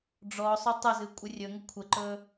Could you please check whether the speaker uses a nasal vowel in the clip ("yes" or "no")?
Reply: no